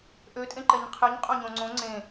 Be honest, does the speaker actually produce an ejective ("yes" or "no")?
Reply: yes